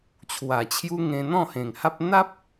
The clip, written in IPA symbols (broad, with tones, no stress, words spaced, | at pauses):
t͡ɕʰwa˨˩t͡ɕʰju˦ ŋẽ˧ n̪ɔ̃˥˧hẽ˨˩ŋha˦p̚ n̪a˦p̚